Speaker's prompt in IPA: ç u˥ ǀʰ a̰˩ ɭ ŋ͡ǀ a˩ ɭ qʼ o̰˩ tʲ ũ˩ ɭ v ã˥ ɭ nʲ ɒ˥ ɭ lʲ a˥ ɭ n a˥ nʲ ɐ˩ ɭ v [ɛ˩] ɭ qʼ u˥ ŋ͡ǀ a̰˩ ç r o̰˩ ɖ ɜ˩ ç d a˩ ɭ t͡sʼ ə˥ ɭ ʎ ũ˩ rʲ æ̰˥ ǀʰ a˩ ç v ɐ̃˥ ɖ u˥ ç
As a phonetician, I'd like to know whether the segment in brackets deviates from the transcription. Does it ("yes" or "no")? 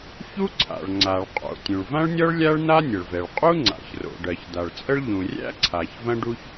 no